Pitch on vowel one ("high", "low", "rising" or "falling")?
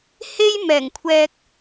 high